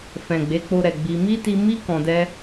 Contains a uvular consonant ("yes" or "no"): no